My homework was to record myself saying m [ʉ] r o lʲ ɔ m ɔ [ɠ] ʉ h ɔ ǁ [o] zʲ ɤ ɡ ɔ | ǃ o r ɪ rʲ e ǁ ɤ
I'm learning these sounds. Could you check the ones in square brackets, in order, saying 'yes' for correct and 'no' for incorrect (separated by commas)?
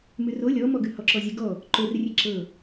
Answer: yes, no, no